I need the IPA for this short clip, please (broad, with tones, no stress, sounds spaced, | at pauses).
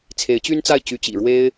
t͡sʰ e˧˥ ɪ̯ t͡ɕ y˥ n t͡s a˥˩ ɪ̯ t͡ɕ y˧˥ t͡ɕ ḭ˨˩ ɻ w e˥ ɪ̯